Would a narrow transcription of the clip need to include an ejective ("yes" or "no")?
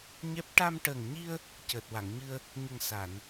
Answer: no